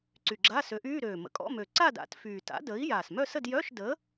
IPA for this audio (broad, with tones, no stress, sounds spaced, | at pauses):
ǀ y˨˩ ɡ͡ǁ a˧˥˧ s ø˨˥ ʔ yː˧˥˧ ɾ øː˨˩ m ə̰˨˩ kʼ ɔ̰˧˥˧ m ø˨˩ ǀ a˥˧ d a̰˨˥ t f yː˨˩ t a̰˨˥ d əː˨˥ i̯ j aː˨˩ s m œ˥˧ s ə˥˧ d j œ˧˥˧ ʃ d əː˨˥